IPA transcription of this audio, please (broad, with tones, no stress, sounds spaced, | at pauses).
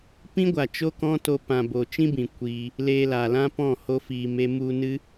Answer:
p ĩ˦ ɡʷ a˨ t͡ʃ o˦ k ɔ̃˦ t o˧ p ã˨ b o˨ t͡ʃ ĩ˦ b ĩ˨ kʷ iː˧ | l eː˧ l a˨ l ã˦ p ɔ̃˦˨ h o˦ f iː˧ m e˦ m u˧ n ɨ˦